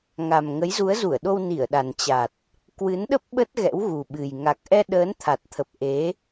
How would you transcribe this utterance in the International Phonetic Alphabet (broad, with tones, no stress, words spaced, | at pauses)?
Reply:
ŋa˨˩m ŋə˨˦jzu˨˦ə̯zu˧˩ə̯ɗo˧w ni˧˩ə̯ɗa˨˩nt͡ɕa˨˩t̚ | kwɨ˨˦nɗə˦˥p̚ ɓə˦˥t̚ ɣɛ̰˧˥wɣu˨˩ɓɨ˨˩j ŋa˨˩k̚ʔɛ˧ ɗəː˨˦nt̪ʰa˨˩t̚t̪ʰə˨˩p̚ ʔe˨˦